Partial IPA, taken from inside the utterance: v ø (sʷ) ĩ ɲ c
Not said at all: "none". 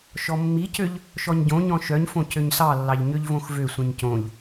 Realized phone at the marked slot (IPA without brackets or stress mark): sʷ